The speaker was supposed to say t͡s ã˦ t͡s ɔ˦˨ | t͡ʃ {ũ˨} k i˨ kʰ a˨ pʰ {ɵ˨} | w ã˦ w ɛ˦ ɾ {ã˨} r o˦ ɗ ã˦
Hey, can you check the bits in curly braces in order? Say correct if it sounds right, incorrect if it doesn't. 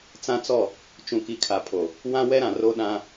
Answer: correct, incorrect, correct

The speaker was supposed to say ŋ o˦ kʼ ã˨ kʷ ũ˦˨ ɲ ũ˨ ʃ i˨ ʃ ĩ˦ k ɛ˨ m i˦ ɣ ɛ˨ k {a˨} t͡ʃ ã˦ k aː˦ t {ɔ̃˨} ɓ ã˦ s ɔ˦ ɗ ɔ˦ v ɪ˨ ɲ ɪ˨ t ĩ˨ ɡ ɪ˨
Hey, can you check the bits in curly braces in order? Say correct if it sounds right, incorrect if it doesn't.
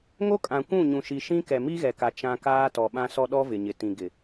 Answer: correct, incorrect

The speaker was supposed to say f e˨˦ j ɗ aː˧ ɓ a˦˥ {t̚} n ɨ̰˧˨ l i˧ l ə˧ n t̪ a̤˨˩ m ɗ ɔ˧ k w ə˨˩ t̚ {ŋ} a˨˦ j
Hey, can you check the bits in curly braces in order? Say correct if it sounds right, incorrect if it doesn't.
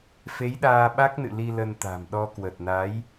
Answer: incorrect, incorrect

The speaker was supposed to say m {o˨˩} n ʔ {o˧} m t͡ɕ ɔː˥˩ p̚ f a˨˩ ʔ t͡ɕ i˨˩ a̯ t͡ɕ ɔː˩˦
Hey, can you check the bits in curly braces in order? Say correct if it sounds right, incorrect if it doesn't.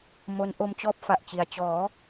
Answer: incorrect, correct

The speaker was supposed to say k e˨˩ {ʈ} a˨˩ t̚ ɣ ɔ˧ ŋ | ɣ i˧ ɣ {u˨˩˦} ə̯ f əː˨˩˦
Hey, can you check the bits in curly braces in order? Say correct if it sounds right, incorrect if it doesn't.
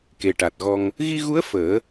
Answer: correct, incorrect

